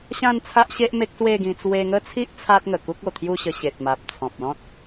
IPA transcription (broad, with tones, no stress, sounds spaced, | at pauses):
ɕ ã˥˧ n t͡sʰ a˦ ʔ ɕ e˦ ʔ m e˦ k̚ s w e˥˧ ɡ ĩ˧ t͡s w e˧ ŋ ə˥˧ t͡sʰ i˦ ʔ t͡sʰ a˦ t̚ ŋ ə˨˩ k u˦ k̚ o˨˩ t̪ʰ j u˥˧ ɕ ə˧ ɕ e˨ t̚ m a˨ p̚ t͡sʰ ɔ̃˨ p̚ l ɔ̃˦ t̚